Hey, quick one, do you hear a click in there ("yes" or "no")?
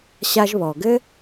no